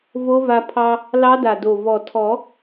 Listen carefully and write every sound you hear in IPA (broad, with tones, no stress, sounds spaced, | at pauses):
v o˦˥ v a˧ pʰ ɑ˧ | l ɑ˦˥ d a˨˩ d o˨˩ v ɔ˨˩ tʰ ɔ˨˩˦